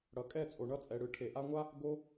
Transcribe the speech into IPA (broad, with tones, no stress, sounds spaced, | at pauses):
ɽ ʌ˨ kʼ ɛ˦˨ t͡sʼ o˨ ɳ ʌ˧ t͡sʼ ɛ˨ ɽ ɯ˨ ʈʰ e˨ ʔ a˧ ŋʷ a˦ | ɡ o˧